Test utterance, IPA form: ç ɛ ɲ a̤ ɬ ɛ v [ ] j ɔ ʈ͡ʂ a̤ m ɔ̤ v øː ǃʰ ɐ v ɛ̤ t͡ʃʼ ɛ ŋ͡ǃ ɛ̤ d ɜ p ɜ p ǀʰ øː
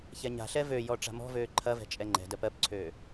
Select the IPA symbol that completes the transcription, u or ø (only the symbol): ø